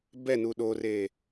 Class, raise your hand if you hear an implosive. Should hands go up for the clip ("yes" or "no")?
yes